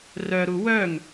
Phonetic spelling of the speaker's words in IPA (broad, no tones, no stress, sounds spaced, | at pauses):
r œ ɾ u w œ ŋ